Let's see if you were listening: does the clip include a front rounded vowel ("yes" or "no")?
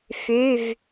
yes